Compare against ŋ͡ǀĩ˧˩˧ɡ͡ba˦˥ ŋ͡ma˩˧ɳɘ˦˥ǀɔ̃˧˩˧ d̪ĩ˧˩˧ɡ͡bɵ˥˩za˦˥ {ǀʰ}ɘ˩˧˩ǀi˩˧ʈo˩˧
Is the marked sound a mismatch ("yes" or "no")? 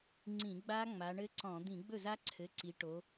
no